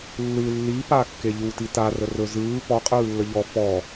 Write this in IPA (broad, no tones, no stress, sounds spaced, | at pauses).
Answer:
lː ɯ lː i p a kː e ʎ u t i t a r ə r ɵ z ɯː p ɔ qʼ ɯː lː ə ʎ ɔ f ɔ